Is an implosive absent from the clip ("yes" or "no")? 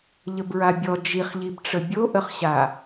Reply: yes